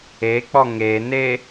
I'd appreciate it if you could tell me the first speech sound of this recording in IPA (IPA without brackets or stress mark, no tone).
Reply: e